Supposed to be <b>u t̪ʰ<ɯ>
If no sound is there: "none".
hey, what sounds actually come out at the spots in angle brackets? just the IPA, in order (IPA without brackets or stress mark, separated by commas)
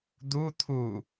d̪, u